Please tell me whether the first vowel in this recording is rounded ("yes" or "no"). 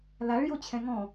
no